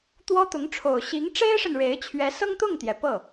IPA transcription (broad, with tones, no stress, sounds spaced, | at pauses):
t̪ w ɔ˥ t̪ ʊ˧˥ ŋ ʈ͡ʂʰ o˨˩ ʊ̯ ɕ i˧˥ ŋ ʈ͡ʂ e˥ ɪ̯ ʂ ə˨ n ɻ e˧˥ ɪ̯ t͡ɕʰ ɥ ɛ˧˥ s ɤ˥ ŋ t̪ ʊ˥˩ ŋ t̪ j ɛ˩ p ɤ˥˩